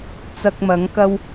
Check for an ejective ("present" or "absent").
absent